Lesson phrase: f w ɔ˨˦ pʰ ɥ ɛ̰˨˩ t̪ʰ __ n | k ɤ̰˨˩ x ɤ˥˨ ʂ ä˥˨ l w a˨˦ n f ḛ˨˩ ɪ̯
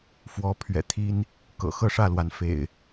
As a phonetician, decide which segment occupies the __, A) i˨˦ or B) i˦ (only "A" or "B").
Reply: B